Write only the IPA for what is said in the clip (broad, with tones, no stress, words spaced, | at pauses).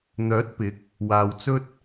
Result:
n̪œː˨˥t̚pɪ˨˥k̚ | waː˨wt͡sɵ˥t̚